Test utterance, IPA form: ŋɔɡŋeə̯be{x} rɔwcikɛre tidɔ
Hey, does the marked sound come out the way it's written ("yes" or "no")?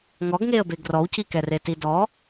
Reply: no